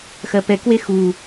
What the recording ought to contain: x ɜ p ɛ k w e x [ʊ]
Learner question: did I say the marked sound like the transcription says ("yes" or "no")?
no